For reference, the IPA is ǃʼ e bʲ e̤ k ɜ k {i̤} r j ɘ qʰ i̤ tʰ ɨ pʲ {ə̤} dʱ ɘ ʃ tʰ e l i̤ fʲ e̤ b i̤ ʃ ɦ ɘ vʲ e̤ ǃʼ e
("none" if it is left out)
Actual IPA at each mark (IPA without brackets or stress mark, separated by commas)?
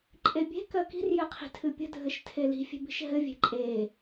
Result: i̤, ə̤